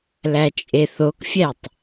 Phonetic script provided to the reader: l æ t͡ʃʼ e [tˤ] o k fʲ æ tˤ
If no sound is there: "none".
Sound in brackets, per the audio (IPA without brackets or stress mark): θ